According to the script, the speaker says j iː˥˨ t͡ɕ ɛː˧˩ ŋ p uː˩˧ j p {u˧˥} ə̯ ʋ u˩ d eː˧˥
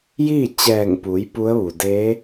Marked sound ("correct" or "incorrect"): correct